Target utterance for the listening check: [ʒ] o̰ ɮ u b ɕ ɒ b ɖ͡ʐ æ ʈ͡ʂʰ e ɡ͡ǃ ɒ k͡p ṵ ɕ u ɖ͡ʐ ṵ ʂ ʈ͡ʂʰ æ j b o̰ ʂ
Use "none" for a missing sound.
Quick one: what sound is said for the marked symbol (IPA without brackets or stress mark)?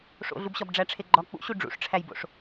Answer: ʂ